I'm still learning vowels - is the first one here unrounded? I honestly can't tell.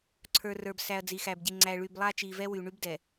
yes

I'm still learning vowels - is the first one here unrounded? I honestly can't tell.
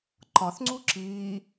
no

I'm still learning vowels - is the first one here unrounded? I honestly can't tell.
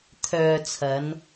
no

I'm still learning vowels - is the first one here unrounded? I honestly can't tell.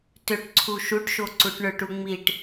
no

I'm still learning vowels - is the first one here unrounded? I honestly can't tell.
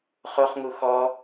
no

